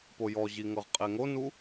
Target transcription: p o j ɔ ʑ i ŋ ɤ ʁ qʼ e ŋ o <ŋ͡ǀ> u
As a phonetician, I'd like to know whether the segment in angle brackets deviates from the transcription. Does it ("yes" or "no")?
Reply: yes